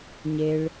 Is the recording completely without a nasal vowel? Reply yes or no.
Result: yes